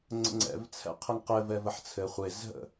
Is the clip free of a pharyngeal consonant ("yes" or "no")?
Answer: no